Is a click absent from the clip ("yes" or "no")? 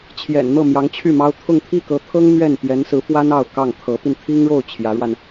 yes